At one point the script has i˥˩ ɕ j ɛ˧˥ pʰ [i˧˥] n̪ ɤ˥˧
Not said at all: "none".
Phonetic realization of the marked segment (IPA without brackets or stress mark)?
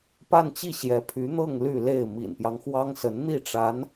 y˧˥